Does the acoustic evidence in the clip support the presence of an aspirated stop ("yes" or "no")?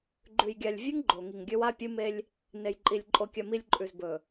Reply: no